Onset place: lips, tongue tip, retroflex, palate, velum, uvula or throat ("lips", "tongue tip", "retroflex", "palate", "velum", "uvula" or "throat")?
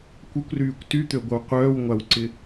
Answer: velum